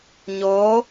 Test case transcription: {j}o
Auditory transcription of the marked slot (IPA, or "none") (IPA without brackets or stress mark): ɲ